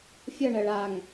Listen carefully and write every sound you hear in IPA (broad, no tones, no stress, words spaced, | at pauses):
fʲʌɳɜɭ aŋ